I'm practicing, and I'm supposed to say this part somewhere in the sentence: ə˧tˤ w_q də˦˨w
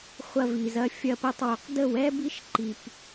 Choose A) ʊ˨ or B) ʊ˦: A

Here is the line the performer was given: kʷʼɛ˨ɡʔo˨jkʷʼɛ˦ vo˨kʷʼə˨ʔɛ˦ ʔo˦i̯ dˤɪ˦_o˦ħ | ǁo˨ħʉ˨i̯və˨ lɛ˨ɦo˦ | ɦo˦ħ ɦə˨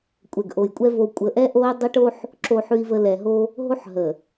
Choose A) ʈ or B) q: A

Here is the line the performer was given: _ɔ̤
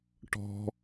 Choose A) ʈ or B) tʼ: A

